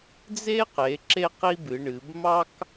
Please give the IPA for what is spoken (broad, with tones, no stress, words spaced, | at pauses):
d͡ze˥ qe˩˧ ǁe˥qi˥bɨ˩˧ɳɨ˩˧b mɑ˥k